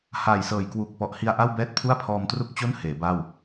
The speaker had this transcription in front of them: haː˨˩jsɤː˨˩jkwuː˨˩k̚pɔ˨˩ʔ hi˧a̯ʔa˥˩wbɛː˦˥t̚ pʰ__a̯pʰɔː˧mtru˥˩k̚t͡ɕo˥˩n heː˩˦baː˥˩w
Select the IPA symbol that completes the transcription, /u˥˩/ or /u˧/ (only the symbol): u˥˩